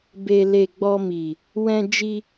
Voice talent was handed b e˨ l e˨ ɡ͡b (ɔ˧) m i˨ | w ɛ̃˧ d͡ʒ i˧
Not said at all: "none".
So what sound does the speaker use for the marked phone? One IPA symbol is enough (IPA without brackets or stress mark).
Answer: ɔ˧